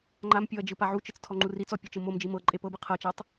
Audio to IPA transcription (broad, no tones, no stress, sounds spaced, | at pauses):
ŋ͡ǃ a m pʲ o ɐ̯ d͡ʒ ɯ p a ʕ u t͡ʃ ɯ t͡s tʰ ɔ ŋ͡ǃ u r i t͡s ɔ pʲ ɤ t͡ʃ ɯ m o m d͡ʒ i m ɤ ǃʼ e p ɤ b ɯ qʰ ɤ t͡ʃ a tˤ